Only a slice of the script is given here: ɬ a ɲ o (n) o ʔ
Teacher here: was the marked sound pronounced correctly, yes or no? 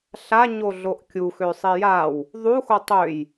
no